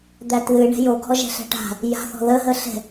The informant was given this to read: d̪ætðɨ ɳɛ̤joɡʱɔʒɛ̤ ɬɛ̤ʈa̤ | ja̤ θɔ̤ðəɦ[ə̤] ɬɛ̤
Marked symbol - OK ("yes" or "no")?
no